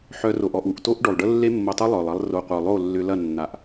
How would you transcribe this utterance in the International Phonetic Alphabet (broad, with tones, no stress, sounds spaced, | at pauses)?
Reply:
ħ œ˧ r o˨ ʔ ɔ˨ ʔ u˨ ʔ t o˦ ʔ ɖ o˨ lˠ ɖ ə˦ lː e˦ mː o˧ tˤ y˦ lˠ œ˨ lˠ ɐ˦ lˠ r o˧ qʷ œ˨ lˠ o˦˨ lː ʏ˧ l ɐ˦˨ nː a˨ ʔ